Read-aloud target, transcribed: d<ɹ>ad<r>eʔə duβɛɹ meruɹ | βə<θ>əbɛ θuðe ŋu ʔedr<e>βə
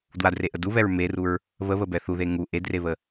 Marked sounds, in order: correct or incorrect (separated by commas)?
incorrect, correct, incorrect, correct